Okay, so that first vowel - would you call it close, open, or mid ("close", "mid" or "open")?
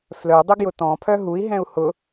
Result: mid